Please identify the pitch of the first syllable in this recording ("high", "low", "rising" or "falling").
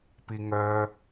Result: low